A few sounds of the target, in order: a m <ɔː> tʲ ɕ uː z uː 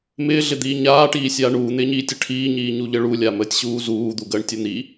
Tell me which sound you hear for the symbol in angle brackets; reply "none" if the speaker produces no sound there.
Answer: əː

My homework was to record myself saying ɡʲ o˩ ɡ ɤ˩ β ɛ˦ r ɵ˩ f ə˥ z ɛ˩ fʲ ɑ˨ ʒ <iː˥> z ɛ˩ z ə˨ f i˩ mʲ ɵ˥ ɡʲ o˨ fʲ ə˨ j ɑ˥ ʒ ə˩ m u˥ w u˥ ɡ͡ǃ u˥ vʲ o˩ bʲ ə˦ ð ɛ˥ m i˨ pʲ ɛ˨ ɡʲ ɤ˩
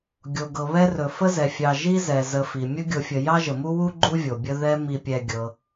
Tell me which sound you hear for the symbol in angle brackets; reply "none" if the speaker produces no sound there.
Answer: i˥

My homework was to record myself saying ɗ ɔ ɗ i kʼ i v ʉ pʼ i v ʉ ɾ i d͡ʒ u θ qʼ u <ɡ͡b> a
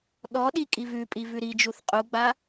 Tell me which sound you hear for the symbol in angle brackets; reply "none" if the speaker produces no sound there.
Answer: ɡ͡b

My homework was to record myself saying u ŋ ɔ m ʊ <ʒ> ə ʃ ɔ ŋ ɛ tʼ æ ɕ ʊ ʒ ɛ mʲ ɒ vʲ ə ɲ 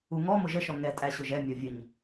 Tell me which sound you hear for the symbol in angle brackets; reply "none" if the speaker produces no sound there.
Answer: ʒ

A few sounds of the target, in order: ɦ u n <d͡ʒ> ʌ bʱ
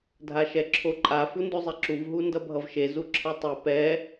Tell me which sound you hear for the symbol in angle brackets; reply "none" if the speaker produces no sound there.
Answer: d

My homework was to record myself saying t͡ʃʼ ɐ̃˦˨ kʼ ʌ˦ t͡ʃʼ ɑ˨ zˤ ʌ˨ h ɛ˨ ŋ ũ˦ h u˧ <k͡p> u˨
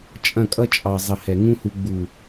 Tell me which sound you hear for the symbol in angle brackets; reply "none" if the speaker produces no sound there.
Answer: ɡ͡b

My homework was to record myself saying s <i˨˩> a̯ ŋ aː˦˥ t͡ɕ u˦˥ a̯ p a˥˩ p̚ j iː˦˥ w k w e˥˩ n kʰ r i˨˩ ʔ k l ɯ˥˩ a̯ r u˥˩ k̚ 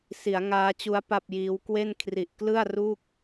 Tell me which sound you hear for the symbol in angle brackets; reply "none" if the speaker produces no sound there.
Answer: i˩˦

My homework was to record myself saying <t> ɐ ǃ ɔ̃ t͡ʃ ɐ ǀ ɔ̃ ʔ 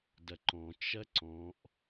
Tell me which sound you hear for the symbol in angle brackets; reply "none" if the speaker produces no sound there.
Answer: d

